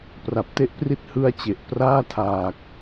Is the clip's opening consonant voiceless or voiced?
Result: voiceless